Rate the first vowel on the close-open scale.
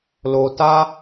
mid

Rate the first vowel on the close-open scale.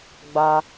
open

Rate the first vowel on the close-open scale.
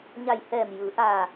open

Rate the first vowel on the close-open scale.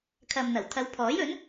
open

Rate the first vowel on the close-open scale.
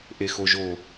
mid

